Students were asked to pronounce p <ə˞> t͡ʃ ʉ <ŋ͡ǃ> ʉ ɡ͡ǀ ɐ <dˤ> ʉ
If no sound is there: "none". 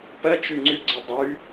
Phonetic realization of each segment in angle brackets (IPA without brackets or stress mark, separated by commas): ɐ, ŋ͡ǀ, dˤ